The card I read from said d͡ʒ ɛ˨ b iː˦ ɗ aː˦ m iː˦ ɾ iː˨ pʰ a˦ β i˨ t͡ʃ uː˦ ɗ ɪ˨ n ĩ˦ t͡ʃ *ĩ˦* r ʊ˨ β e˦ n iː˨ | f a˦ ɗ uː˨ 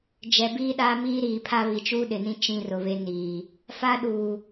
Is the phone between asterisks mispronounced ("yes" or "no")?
no